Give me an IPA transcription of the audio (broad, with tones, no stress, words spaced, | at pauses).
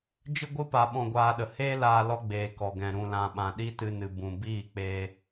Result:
d͡ʒɨ˦ɡʷɨ˦ pa˧ɓɔ̃˧ɡʷaː˧ɗə˨ heː˦laː˧lɔ˧ɡ͡beː˨ kɔ˨ɡɛ̃˨ ɾũ˨lã˨ ɓã˨ɗi˦tɨ˧nɨ˨ bũ˨ biː˦˨k͡pe˧